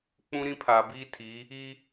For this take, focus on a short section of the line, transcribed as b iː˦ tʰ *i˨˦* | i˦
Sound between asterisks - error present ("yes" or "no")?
no